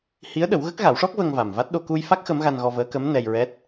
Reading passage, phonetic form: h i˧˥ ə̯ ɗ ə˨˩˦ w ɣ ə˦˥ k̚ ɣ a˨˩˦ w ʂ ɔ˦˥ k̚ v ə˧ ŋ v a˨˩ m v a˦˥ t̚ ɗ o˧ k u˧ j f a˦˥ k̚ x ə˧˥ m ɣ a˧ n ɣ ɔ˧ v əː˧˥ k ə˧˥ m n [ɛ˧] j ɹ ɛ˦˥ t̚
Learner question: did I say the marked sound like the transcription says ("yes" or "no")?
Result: yes